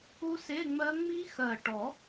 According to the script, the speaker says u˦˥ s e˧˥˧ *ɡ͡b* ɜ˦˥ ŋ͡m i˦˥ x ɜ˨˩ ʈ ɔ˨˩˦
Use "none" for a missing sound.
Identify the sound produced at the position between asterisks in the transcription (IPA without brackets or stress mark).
ŋ͡m